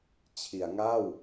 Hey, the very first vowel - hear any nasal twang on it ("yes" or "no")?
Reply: no